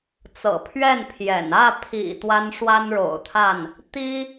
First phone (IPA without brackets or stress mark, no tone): t͡s